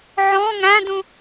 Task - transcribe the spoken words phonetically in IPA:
ʕɔ̃ ŋæ̃dũ

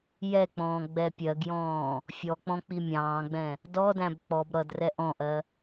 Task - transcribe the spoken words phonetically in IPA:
jɛk͡pɔ̃ː ɡ͡bɛpʲɜɡjɔ̃ː | fʲɔk͡pɔ̃ k͡pimʲɑ̃ːɡ͡bɛ̃ | dɔdæ̃b k͡pɔb ɾʌdrɛ ʔɔ̃ʔɜ

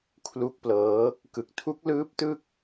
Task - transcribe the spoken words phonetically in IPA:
kʰlu˦˥k̚plɤː˦˥ | kɯ˨˩k̚tʰu˦˥k̚lɯː˦˥p̚tɯ˥˩k̚

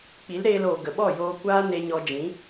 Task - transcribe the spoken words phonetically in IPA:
k͡pi˨˦lɾeː˧loː˨ ɡə˨ɓɔ˦˨joː˧kʷaː˦ ne˧ɲɔ˧d͡ʒĩ˨˦

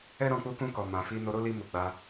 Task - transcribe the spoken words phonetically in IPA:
ɛ˦ɾɔ̃˧ k͡pu˧kũ˧kɔ˨ mã˨fi˧ no˧ɾo˦li˧ mu˨ ɡ͡ba˧

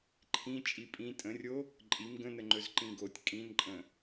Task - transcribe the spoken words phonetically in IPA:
ǃʰĩ t͡ʃʼipʼĩ tʼə̃rʲo | ǃʼim ɡə̃nəŋ͡ǃɵz ǃĩɡotʲ kʼĩnǃʼə̃

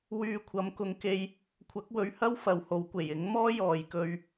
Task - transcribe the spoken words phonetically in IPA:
wyː˧kʷʰɐ˨˥mkʊ˨˧ŋke˧j | kʷʰɐ˨˥k̚wɵ˨˧ɥhɐ˥w fɐ˨˧who˨˥wkʷe˨˩j ɪ˨˥ŋmɔː˥ jɔː˨jkɵ˧ɥ

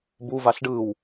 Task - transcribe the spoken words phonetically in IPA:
buvaɬ ɖɯw

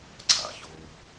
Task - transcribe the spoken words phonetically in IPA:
ǀʰa̰ çoːp

